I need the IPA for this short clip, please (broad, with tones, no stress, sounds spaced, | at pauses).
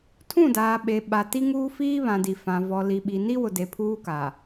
tʰ ũ˦˨ d aː˨ ɓ e˨ ɓ a˨ t i˦ ŋ uː˦ f iː˦ β ã˨ d i˨ f ã˨ v ɔ˨ l i˨ ɓ i˨ n i˦ w ʊ˨ d e˨ pʰ uː˦ k a˨